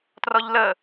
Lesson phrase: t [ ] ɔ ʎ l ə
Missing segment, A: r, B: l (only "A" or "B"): A